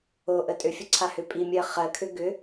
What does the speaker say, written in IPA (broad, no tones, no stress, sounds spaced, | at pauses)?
o ʔ ə tʼ ʏ fʲ ə ǀʰ a h ʏ pʼ i mʲ ɜ χ ɜ kʰ ʏ ɡ ʏ